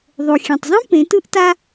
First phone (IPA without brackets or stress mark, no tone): ðˤ